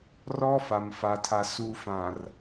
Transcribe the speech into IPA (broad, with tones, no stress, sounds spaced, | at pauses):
r ɔ˦ f a˨ m f a˨ tʰ a˨ s uː˨ f ã˨ r